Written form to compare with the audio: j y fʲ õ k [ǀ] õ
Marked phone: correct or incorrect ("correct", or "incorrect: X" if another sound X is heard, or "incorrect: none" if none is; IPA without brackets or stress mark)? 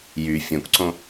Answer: correct